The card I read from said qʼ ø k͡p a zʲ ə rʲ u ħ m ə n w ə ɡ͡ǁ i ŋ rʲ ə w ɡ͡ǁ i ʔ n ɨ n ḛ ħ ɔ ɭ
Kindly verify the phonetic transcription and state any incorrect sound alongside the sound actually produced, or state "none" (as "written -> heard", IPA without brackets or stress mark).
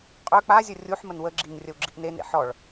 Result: ɨ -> e